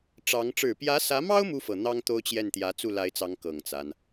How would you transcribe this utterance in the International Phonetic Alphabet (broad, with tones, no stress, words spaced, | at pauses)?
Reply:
ʈ͡ʂɑ˧˥ŋ ʈ͡ʂɻ̩˨˩pjä˧˥sä˧˥mɑ˥ʊ̯ mu˥fɤ˨˩n̪ɑ˥ŋ t̪o˥ʊ̯t͡ɕjɛ˥˩n t̪jä˧˥t͡su˥˩la˧˥ɪ̯t͡sɑ˧˥ŋ kɤ˨˩ŋt͡sa˦n